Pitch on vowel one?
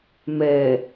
low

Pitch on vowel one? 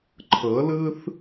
rising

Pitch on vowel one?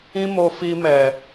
high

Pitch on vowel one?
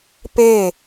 falling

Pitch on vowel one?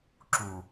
low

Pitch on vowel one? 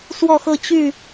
falling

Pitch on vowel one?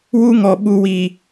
high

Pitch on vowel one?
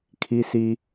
high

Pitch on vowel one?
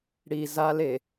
low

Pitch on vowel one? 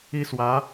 high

